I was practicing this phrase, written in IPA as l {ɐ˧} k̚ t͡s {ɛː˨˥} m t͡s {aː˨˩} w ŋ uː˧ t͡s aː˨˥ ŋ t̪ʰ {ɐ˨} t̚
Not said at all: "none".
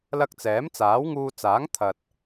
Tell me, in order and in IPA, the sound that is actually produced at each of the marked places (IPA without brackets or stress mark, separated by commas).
ɐ˧, ɛː˨˥, aː˨˥, ɐ˨